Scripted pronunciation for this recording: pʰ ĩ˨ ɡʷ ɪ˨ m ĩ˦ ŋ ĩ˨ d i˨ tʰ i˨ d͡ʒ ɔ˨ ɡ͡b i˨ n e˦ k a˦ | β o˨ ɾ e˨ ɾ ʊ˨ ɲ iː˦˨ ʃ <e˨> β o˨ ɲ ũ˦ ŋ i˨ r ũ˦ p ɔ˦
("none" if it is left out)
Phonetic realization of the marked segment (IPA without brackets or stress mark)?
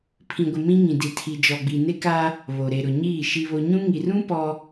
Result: i˨